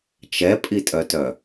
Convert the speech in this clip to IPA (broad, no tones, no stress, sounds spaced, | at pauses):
t͡ʃ ɛ pʼ i tʼ œ t œ